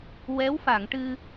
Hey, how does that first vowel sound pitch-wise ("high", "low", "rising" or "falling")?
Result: rising